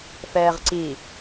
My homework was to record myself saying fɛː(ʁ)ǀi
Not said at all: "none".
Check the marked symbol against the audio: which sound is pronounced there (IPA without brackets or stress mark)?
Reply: ʁ